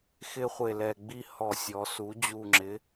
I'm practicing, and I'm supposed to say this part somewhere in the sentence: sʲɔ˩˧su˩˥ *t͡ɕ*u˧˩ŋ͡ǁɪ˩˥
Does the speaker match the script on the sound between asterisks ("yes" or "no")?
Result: no